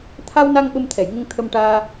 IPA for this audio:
t̪ʰ a˧ w n a˧ ŋ ɓ ə˧ m t̪ʰ ɛ˨˩˨ j ŋ ə˧ ŋ t̪ʰ ə˧ m ʈ aː˧

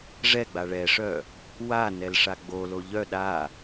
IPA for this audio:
ʐ ɛ ɡ͡b a ɭ ɛ ʂ œ | w a n ɛ l ʂ a ɡ͡b o l o ʎ œ ɗ a

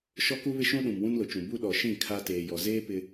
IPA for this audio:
ʃ ɔ˦ k u˦ β ɪ˦ ʃ ũ˦ ɗ ũ˨ m w ũ˦ n l ʊ˨ t͡ʃ ũ˨ b u˦ ɗ ɔ˨ ʃ ĩ˦˨ kʰ a˦ t eː˨ j ɔ˨ z eː˦ p ɪ˦

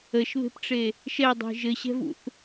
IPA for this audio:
ə ʃ β e̤ p ʈ͡ʂ e | ʃ ɛ dˤ e̤ ʒ ɘ ɕ ɛ̤ v ṵ θ

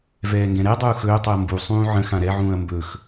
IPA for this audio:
v ɛː ŋ ɡ ɛ̃ ɾ ɛ dˤ uː x ɵː tˤ u ɐ̯ m b u sˤ ũː ʕ ə̃ x ã ɾ ɛ ʕ ũː ɐ̯ m b ɵ x

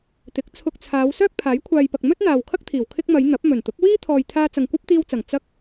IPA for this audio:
t̪ ɪ˨˥ k̚ t͡sʰ ʊ˧ k̚ t͡sʰ aː˨˧ w s œː˥ k̚ pʰ aː˨˥ j kʷʰ aː˨ j p ɐ˨ k̚ m ɵ˥ t̚ n̪ aː˨ w kʰ ɐ˥ k̚ t̪ʰ iː˨˩ w kʰ ɪ˧ k̚ m ɐ˨˧ j n̪ ɐ˨˥ p̚ m ɵ˨˩ n t̪ ʊ˨˥ k̚ w iː˥ t̪ʰ ɔː˨ j t̪ʰ aː˧ t͡s ɐ˨ ŋ kʷ ɐ˥ p̚ t̪ iː˧ w t͡s ɐ˨˩ ŋ t͡s ɐ˧ k̚

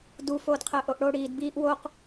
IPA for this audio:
d u f oː d qʰ əː ʔ o ʔ ɽ o ɽ iː d b iː ʔ w o q

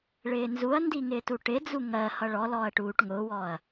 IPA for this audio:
ɭ ɪː n z u ɐ̯ n d i ŋ ɪː t u ʈ ɪ d͡z u ŋ ɜ h ʌ ɭ ɔ l ɔː ɐ̯ ʈ uː ʈ ŋ ʊː w ɔː ɐ̯

